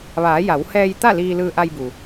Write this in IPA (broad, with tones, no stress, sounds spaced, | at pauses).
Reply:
ʋ aː˩˧ j a˩˧ w h ɛː˧ j t̪ a˥˨ l iː˧ l ɯː˧ ʔ a˧ j b u˩